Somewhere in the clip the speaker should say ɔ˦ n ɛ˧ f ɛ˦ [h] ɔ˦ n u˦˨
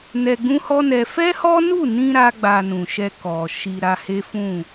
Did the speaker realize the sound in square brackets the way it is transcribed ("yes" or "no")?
yes